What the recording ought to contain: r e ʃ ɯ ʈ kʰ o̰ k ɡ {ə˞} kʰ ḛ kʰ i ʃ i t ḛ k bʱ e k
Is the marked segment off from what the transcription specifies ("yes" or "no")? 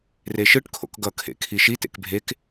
yes